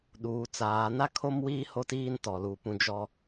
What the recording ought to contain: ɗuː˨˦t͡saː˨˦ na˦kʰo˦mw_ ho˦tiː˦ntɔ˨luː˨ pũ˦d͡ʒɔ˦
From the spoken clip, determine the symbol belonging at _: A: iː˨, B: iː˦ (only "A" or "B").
B